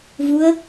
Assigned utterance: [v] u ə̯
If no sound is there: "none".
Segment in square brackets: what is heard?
v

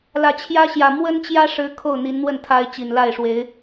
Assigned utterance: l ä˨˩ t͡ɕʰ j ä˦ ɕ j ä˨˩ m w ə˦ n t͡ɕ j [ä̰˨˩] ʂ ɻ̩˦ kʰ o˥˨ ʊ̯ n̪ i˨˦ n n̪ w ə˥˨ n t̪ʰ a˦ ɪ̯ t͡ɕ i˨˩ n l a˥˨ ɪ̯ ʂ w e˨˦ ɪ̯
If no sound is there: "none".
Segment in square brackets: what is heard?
ä˦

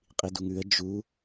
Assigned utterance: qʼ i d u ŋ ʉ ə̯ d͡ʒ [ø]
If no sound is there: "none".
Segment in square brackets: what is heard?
u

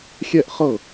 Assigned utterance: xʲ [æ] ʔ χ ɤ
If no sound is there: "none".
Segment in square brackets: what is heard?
ɛ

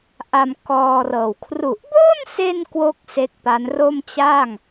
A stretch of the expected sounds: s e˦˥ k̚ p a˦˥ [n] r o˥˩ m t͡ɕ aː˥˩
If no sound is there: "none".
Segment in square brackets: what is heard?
n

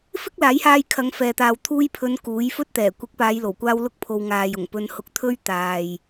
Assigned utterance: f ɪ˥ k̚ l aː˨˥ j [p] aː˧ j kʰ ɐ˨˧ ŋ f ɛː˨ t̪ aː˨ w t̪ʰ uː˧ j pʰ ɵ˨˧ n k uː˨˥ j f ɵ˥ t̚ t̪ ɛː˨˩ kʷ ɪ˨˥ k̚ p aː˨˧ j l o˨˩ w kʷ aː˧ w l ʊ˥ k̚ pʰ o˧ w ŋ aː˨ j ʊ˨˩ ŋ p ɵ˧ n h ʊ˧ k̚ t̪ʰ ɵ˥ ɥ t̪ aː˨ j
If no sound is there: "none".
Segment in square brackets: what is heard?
h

